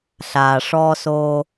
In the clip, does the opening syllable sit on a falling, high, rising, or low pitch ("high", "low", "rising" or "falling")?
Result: low